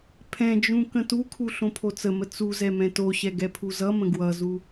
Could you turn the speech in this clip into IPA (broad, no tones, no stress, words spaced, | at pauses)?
pʰɛ̃d͡ʒũ kə̃tukʰu ɬõpʰot͡səmə t͡suzɛ mɛ̃toɕɛ ɡɛpʰuzʌmə̃ ɡwʌzu